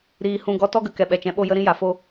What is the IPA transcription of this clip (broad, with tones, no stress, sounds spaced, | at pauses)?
ɾ iː˨ h ũ˧ ɡ ɔ˧ t ɔ˦ ɡ ə˨ k ɛ˨ ɓ ɛ˨ t͡ʃ ɛ̃˨˦ ɓ o˦˨ j ə˦ ɾ ĩ˦ j a˨ f o˦